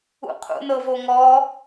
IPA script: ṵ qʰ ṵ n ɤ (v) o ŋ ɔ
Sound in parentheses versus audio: correct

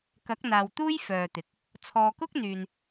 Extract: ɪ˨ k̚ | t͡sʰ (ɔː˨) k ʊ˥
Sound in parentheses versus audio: correct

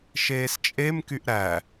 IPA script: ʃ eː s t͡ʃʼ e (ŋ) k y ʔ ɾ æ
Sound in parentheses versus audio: incorrect: m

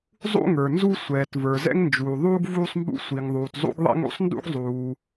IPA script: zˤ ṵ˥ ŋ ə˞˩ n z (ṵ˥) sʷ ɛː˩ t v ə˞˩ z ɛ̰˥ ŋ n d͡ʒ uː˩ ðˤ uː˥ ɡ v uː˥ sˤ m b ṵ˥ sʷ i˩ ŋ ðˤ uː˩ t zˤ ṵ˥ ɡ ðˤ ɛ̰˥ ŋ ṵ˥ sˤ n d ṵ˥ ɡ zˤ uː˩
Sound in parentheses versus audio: incorrect: u˥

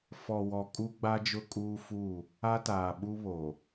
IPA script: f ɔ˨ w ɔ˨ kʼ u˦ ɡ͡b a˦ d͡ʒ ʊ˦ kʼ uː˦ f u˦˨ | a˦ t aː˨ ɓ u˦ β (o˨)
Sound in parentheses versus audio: correct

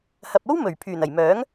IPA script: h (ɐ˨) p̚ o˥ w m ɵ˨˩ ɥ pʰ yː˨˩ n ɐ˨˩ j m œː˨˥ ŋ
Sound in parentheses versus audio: correct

